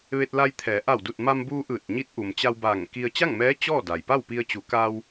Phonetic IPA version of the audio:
ʋ e˧ t̚ l a˧ j t̪ʰ ɛː˩˧ ʔ a˧˩ w d u˧˩ t̚ m a˧ m b uː˧ ʔ ɯː˧˩ t̚ ɲ i˧˥ t̚ ʔ u˩ m t͡ɕ a˧ w b aː˧˩ ŋ k i˧ ə̯ t͡ɕ a˥˨ ŋ m ɛː˧˥ t͡ɕ ɔː˥˨ d a˩ j p a˥˨ w p i˧ ə̯ t͡ɕ u˩˧ k a˧ w

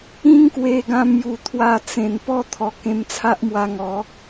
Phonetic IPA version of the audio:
ĩ˦ ŋ k w e˧ ɡ ã˧ m j u˨˩ t̪ʰ w a˧ t͡s ẽ˨˩ n p ɔ˥˧ t̪ʰ ɔ˨˩ k ẽ˧ m t͡sʰ a˦ ʔ m w a˧ ŋ ɔ˨˦

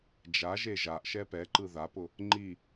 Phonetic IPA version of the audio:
d͡ʒ a ʒ e ʒ a ʔ ʃ ɛ p ɛ ǃ ɯ ð a p ʊ | ŋ͡ǃ i

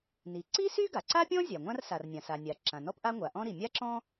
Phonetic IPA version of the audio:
n i˩ ǀ i˥ s y˥ ɡ a˩ ǀ a˥ pʲ ɔ̃˥ zʲ a˩ ŋʷ ã˥ r s a˩ r nʲ ã˩ s a˩ nʲ a˩ ǁ ã˩ n ɔ˥ p ʔ a˥ ŋʷ a˩ ʔ ɔ̃˥ ɾ i˩ mʲ a˥ ǁ ɔ̃˥

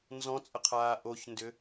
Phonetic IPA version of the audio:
n z ɔ̃ t͡sʼ ə qʰ aː ʔ o ç n d ʏ

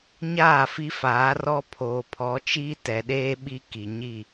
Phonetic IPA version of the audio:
ɲ aː˦˨ f i˦ f aː˨˦ r ɔ˦ pʰ oː˨ pʰ ɔ˨˦ t͡ʃ iː˦ t ɛ˨ ɗ eː˦ ɓ i˦ k i˨ ɲ i˦˨

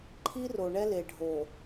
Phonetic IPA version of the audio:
ǃʰ i˦ r o˨ ɳ ɛ˦ l e˨ ɖʱ o˨

